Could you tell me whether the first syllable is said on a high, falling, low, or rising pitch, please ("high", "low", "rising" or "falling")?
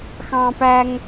high